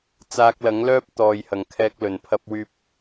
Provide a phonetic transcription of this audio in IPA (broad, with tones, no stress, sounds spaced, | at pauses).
t͡s aː˧ k̚ l ɐ˨˥ ŋ l œː˥ p̚ t̪ ɔː˨ j h ɐ˨˩ ŋ kʰ ɛː˧ k̚ l ɵ˨˩ n pʰ ɐ˧ p̚ w yː˧ p̚